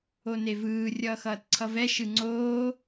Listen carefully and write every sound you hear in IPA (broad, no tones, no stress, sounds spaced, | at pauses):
o n e v ɯː rʲ ʌː x ʌː t ǀʰ ʌ v ɛ ʃ ɯ ŋ͡ǀ oː